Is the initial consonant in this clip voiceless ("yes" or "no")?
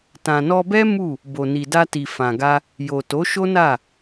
yes